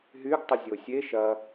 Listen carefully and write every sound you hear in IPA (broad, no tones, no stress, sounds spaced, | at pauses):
ɦ y ɡ tˤ ə zʲ o sʲ e ʃ ɐ